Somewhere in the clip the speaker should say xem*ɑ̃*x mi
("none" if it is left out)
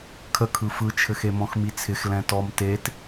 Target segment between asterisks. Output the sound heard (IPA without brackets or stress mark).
ɔ̃